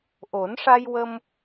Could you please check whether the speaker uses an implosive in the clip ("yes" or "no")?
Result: no